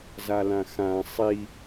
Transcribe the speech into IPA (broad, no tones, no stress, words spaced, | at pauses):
zalãxã sˤi